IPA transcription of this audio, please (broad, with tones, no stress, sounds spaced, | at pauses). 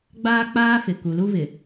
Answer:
ɡ͡b aː˦ k͡p aː˦ f ɪ˨ k u˨ l u˦ v ɪ˨